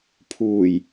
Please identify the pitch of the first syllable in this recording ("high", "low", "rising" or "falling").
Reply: low